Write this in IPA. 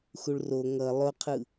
xuɭro ŋʌ lˠoqʰɯ

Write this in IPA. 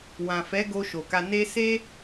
wã˨fɛ˨˦ɡo˧ ʃo˨ka˧ ne˧se˦

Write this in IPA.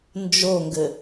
nd͡ʒoŋɡɘ

